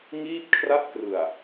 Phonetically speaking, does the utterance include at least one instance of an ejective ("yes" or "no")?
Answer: no